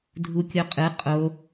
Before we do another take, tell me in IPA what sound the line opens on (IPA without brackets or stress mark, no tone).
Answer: dʱ